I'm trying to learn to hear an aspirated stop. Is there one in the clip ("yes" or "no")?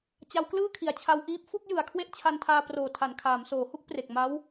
yes